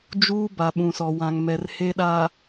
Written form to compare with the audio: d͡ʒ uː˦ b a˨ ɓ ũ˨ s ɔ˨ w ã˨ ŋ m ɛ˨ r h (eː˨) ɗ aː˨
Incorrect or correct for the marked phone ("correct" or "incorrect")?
incorrect